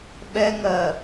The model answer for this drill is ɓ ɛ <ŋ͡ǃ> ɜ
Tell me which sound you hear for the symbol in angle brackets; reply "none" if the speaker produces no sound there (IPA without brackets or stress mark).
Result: ŋ